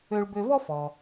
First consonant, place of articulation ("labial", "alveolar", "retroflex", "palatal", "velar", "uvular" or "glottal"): retroflex